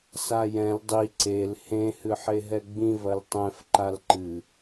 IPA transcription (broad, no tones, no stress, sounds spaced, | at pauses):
s a j ɛ̃ l dˤ i ǀ e l h ẽ h ɨ ħ e ɦ ɛ ɡ͡b ĩ v ɐ l tˤ ɛ̃ f ǃ a l ǃ ɨ